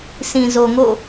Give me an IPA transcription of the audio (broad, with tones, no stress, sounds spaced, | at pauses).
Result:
sʰ ĩ˨ z o˨ ŋ o̰˦˨